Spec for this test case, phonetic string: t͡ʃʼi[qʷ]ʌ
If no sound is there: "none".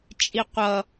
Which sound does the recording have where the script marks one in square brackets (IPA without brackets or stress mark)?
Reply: qʷ